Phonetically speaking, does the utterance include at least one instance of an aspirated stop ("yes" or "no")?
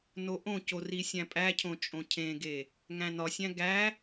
yes